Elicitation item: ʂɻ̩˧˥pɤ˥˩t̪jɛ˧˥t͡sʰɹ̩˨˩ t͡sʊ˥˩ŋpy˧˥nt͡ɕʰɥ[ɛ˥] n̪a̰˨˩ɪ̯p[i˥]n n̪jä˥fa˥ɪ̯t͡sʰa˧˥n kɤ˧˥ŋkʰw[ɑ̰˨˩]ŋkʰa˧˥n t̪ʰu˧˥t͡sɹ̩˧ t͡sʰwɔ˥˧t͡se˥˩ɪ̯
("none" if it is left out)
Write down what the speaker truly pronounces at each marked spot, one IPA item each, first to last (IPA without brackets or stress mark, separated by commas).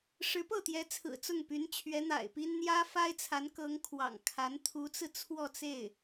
ɛ˧˥, i˥, ɑ̰˨˩